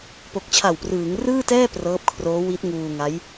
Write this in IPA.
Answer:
p o˨˩ k̚ t͡ɕʰ a˨˩ w p r ɯː˩˦ ŋ r ɯː˥˩ t ɛː˥˩ p r ɤː˦˥ p̚ kʰ r oː˦˥ w i˦˥ t̚ ŋ uː˧ ŋ a˦˥ j

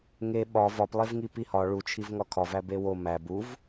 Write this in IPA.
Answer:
ŋ e ɓ ɒ v ɒ p lˠ e v ŋ i p i h ɒ ɭ u t͡ʃʰ i v ŋ ɒ kʰ ɒ v æ b e w o m æ b u v

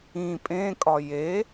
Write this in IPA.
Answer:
ĩ pʼ ẽ kʼ ɒ j e

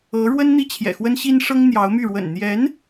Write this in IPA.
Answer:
ɤ˧˥ ɻ w ə˥ n n̪ i˥ t͡ɕʰ j ɛ̰˨˩ x w ə˥ n ɕ i˥ n ʂ ɤ˥ ŋ n̪ j ɑ˧˥ ʊ̯ m y˥˩ ɻ w ə̰˨˩ n n̪ j ɛ˧˥ n

